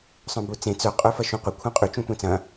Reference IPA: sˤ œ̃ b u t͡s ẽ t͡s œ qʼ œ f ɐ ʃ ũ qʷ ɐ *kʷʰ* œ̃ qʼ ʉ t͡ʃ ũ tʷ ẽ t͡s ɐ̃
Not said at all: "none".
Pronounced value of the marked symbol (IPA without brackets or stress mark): kʷʰ